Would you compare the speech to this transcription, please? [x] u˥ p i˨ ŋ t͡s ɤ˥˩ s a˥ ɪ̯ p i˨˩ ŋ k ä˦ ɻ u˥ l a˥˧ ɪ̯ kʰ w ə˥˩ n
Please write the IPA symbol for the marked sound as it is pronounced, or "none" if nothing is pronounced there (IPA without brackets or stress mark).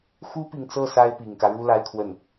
x